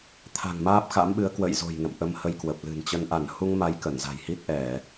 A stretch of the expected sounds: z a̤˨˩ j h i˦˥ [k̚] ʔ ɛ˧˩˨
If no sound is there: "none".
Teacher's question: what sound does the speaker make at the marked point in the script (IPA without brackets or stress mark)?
t̚